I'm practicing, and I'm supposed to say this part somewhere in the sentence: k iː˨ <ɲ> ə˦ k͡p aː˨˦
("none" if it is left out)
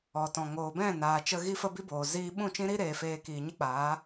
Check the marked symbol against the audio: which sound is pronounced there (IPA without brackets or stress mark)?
ɲ